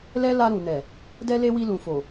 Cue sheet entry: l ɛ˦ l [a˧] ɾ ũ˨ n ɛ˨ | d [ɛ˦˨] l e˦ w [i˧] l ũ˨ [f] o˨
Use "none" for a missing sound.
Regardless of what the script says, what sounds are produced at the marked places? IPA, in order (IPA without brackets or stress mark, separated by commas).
a˧, ɛ˦, i˧, f